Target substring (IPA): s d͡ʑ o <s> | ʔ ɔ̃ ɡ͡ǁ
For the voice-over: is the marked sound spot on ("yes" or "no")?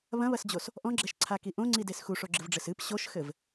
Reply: yes